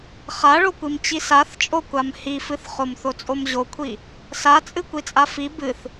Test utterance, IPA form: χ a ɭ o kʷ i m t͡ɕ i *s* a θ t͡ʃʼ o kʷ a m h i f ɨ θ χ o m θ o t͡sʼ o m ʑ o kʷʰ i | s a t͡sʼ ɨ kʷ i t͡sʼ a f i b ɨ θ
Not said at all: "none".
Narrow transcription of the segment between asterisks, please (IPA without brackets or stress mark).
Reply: s